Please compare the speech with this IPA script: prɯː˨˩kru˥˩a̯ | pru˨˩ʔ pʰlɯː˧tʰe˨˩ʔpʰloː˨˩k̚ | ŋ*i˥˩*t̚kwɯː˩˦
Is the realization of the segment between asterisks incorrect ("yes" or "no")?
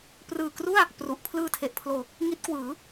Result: yes